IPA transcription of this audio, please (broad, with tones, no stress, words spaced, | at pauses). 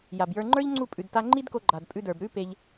ja˨bjə˞˧ŋ͡ǃə˞˦ʎŋ͡ǀu˦˨ pʼʉ˨dta˧ŋ͡ǃi˦dko˧ ɡ͡ǃa˨dpʼʉ˧də˞˨b ɾʉ˦pe˧ʎ